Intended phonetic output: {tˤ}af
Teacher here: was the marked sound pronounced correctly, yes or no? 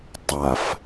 yes